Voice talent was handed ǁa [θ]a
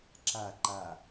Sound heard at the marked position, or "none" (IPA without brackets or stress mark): ǃ